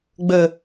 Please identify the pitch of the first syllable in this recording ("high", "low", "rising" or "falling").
low